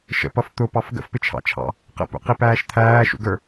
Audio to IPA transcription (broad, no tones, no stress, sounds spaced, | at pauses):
ʃ ə̰ p ʌ f t̪ ʊ p ɑ f ɡ ə̰ f p ɪ t͡ʃʰ ɑ̰ t͡ʃʰ ɑ̰ | q ə̰ p ṵ q i p æː ʃ t̪ʰ æː ʃ ṵ ɡ ə˞